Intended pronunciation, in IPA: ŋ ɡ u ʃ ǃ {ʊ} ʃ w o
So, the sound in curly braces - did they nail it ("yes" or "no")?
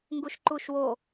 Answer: no